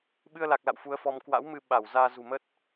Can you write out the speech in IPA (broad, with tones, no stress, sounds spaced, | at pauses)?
ɓ ɨ˧ ə̯ l a˨˩ k̚ l a̰˧˨ w f u˨˦ ə̯ f ɔ˧ m k w a̰˧˥ w m ɨ˧ ɓ a˧˩ w z aː˧ z ṳ˨˩ m ə˦˥ t̚